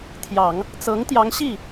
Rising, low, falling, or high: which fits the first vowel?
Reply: low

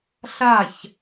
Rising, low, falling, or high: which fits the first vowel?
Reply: falling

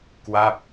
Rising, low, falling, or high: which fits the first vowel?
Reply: falling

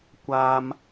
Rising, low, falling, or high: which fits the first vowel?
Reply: high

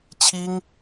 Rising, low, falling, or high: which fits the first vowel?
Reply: high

